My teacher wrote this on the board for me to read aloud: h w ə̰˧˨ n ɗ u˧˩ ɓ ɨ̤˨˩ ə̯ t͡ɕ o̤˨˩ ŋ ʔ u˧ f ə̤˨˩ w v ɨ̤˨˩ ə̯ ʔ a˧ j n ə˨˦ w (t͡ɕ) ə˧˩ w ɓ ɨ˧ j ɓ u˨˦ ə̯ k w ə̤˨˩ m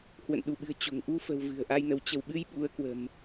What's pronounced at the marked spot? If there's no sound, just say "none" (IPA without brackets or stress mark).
t͡ɕ